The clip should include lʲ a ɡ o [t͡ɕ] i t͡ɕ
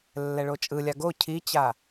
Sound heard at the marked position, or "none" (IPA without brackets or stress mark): cʰ